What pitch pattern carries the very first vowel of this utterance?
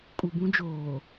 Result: low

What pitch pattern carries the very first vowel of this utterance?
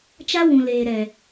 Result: high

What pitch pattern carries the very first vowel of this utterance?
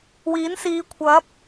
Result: rising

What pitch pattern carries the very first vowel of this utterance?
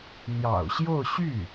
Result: low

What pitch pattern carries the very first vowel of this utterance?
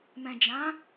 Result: low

